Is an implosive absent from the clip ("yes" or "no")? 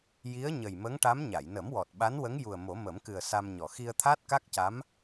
no